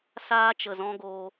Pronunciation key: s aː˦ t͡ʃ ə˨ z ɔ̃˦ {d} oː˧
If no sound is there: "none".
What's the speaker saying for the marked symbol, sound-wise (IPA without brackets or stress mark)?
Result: ɡ